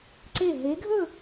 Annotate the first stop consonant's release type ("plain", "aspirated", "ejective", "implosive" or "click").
click